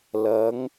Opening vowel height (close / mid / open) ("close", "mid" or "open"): open